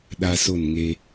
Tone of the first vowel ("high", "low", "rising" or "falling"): high